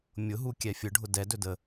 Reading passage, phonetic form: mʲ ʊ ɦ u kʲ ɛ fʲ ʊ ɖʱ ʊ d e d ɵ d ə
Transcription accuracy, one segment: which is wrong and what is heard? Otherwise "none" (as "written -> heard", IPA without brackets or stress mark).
e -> ɛ